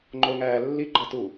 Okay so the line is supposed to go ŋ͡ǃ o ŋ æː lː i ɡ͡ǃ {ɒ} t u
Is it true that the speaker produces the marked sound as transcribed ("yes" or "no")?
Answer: yes